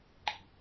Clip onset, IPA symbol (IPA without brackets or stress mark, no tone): ɡ͡ǃ